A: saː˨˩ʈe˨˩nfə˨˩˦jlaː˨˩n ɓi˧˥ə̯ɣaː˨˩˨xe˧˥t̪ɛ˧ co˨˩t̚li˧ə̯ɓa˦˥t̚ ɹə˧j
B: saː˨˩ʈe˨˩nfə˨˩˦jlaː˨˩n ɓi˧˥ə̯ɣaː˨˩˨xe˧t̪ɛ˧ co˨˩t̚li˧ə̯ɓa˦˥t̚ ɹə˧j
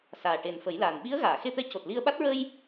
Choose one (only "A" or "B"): B